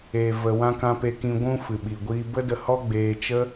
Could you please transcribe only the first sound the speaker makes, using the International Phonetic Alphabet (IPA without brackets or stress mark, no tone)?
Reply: eː